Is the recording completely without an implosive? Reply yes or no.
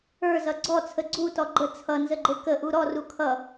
yes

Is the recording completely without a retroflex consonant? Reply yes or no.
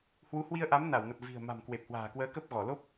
yes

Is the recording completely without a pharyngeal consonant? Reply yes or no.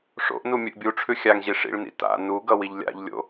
yes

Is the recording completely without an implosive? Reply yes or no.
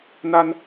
yes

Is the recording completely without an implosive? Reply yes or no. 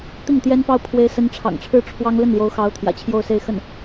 yes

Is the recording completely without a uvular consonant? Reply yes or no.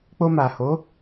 yes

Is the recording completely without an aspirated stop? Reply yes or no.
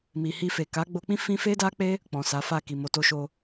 yes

